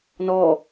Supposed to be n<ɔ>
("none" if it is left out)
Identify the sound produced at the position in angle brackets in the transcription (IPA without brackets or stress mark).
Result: ɔ